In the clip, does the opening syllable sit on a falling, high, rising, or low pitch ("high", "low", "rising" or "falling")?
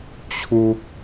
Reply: low